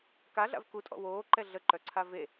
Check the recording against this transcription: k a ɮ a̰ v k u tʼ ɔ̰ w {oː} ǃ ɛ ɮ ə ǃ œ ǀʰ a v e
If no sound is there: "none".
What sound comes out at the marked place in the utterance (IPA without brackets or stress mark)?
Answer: oː